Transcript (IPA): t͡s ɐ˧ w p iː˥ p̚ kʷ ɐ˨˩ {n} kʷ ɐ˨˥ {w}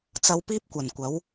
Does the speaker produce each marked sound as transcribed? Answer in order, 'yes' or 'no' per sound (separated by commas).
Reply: yes, yes